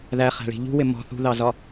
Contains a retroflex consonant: yes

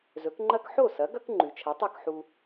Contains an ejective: no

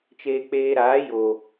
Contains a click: no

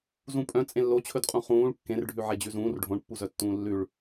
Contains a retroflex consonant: yes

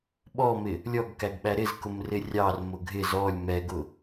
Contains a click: no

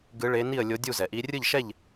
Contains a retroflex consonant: yes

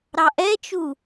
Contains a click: no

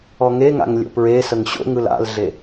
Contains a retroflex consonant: no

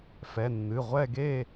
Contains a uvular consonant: yes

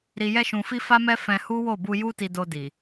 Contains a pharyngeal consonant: no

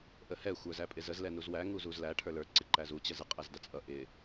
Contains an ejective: yes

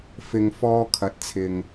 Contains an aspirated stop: yes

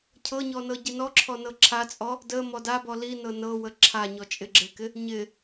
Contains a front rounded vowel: no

